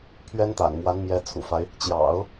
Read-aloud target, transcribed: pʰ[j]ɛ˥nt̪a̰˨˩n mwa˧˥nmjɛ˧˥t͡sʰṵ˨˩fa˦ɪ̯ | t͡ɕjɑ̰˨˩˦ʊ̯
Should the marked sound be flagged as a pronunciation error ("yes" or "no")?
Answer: yes